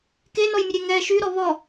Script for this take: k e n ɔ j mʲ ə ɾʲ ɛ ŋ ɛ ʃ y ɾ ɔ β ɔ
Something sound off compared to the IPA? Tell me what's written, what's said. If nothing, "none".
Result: none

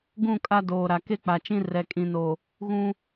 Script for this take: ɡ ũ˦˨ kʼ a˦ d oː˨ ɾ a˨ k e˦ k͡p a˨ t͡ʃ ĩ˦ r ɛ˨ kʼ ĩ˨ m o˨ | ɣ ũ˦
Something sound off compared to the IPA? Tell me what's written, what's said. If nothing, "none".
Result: m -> n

